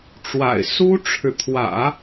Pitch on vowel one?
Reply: low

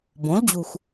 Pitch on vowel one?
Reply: rising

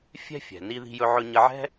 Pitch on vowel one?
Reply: high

